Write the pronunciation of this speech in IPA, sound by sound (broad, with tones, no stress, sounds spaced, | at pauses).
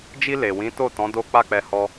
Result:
d͡ʒ i˧ l e˨ w ĩ˨˦ t o˦˨ t ɔ̃˨˦ d o˦ k͡p a˦˨ k͡p ɛ˧ h ɔ˧